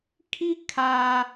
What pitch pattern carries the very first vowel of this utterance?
high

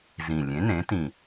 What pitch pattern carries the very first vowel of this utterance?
low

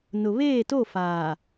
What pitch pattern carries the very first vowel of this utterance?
low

